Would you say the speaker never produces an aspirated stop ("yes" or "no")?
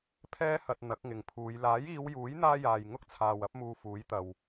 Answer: no